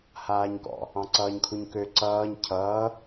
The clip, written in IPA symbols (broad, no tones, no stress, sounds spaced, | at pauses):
h aː ɲ k ɔ̰ | ɑ̃ ǀ ʌː ɲ kʰ u ɲ k ø ǀ ʌː ɲ cʰ ʌː